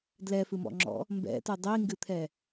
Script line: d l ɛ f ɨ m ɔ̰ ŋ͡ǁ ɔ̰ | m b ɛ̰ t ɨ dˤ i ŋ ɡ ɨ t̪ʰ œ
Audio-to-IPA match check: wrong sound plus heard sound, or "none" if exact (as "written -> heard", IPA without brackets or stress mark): œ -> ɛ